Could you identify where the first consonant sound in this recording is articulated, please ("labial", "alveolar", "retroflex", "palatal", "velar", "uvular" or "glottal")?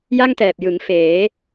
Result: palatal